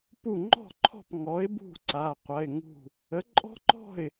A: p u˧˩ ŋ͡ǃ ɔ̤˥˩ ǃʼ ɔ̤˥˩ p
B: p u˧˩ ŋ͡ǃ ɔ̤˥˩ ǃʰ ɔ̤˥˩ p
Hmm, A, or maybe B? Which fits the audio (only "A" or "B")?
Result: B